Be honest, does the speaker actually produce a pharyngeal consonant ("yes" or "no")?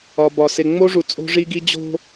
no